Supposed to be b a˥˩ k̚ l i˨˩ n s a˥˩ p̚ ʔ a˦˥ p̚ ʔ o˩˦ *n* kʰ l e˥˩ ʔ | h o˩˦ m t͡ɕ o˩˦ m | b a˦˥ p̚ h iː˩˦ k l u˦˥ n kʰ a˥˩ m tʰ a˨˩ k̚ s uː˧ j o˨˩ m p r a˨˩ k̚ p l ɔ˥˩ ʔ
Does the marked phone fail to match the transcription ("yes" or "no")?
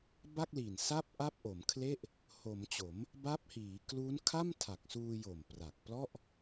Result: yes